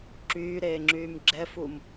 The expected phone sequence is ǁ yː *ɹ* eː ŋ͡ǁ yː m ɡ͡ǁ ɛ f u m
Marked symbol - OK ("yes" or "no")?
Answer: no